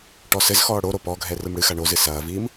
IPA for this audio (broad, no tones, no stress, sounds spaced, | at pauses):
ʈ ɔ s ɘ z x ɔː ɽ o ɾ o p ɔ ɡʱ ɛ r ɨ m ɽ ɨ x a ɳ o z ɨ s ɐː v iː m